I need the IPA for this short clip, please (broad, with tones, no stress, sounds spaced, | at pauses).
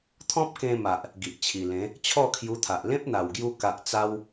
t̪ʰ ɔ̃˦ p̚ k ẽ˧ m a˨ ʔ | ɡ i˨ ʔ t͡ɕʰ i˨˩ l ẽ˨˦ | t͡ɕʰ ɔ˥˧ kʰ j u˧ t̪ʰ a˨ ʔ l ẽ˦ p̚ n̪ a˨˩ w ɡ j u˧ k a˨ ʔ t͡s a˧ w